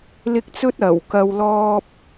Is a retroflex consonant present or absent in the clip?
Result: absent